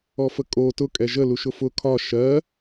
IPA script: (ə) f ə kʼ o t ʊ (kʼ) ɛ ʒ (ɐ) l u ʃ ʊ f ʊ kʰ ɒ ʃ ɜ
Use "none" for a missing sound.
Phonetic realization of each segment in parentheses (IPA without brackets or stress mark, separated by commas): ɔ, kʼ, ə